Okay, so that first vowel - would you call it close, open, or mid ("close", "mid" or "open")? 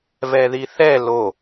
mid